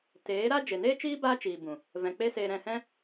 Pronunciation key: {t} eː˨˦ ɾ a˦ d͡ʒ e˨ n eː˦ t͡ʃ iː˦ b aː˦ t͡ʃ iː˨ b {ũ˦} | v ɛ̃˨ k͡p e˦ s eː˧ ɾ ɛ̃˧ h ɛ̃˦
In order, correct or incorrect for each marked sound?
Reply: correct, incorrect

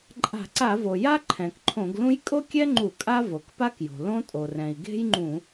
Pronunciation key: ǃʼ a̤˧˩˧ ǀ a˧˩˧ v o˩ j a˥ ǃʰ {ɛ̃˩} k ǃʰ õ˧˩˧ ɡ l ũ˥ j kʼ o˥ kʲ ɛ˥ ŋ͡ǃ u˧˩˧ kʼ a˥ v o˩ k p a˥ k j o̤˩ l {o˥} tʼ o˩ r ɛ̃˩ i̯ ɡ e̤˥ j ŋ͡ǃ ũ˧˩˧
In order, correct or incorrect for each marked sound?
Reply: correct, incorrect

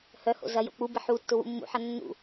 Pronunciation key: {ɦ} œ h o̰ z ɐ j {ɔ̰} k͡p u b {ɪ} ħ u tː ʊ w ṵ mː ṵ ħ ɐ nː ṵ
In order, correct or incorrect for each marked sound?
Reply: incorrect, incorrect, correct

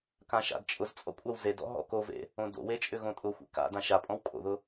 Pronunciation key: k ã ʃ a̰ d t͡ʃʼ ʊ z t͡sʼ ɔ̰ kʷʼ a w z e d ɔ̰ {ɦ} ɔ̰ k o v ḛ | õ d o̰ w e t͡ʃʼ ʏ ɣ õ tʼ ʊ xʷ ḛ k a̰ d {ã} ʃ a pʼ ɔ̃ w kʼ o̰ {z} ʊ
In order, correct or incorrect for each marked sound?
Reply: correct, correct, incorrect

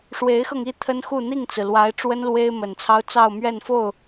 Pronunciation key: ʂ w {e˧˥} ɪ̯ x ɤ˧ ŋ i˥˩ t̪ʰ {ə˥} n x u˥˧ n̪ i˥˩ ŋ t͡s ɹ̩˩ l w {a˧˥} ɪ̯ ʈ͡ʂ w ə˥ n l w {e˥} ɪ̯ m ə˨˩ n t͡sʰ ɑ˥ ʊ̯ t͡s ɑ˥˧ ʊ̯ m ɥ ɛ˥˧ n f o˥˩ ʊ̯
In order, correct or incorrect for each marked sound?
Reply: correct, correct, correct, correct

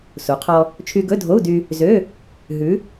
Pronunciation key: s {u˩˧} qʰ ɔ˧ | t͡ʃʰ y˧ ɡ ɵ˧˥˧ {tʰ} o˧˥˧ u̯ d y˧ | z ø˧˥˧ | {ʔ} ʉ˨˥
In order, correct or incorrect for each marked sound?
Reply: correct, incorrect, incorrect

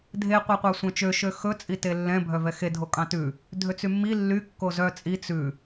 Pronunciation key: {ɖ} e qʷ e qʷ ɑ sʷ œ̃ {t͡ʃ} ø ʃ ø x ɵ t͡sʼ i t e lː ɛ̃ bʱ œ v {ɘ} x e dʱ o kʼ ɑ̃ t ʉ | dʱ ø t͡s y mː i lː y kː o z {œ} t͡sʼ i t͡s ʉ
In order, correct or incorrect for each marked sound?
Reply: incorrect, correct, incorrect, correct

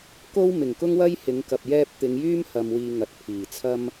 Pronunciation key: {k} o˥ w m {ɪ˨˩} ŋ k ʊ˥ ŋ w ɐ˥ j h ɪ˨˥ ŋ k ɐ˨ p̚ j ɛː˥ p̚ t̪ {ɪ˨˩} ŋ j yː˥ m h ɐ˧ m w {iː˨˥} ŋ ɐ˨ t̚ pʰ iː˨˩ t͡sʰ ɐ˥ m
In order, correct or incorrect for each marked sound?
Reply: correct, correct, incorrect, incorrect

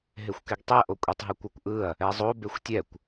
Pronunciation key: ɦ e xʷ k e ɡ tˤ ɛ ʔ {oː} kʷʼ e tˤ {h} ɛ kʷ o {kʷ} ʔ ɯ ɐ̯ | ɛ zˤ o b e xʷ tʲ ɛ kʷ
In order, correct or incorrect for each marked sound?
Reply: incorrect, incorrect, correct

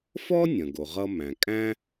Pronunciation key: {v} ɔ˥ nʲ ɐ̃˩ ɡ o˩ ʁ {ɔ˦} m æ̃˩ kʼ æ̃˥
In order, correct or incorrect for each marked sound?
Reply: incorrect, incorrect

